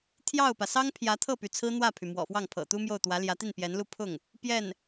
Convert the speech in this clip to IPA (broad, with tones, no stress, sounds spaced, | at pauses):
t̪ʰ j ɑ˥˩ ʊ̯ p ä˩ s ɑ˥ ŋ pʰ j ä˧˥ t̪ʰ ɤ˥˩ p y˩ t͡sʰ ɹ̩˥ n̪ w ä˥˩ pʰ y˩ m w ɔ̰˨˩ f w ɑ˥˩ ŋ pʰ ɤ̰˨˩ t̪ u˥ m j o˥˩ ʊ̯ t̪ w ä˧˥ l j ä˧˥ t̪ i˥˩ n p j ɛ˧˥ n l u˥˧ pʰ ʊ˥˩ ŋ | p j ɛ˥˩ n